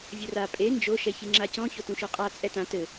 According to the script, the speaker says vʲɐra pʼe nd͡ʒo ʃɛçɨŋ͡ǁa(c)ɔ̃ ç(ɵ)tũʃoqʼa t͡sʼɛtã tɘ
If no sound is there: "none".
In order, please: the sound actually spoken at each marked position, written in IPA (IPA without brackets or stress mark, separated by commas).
c, o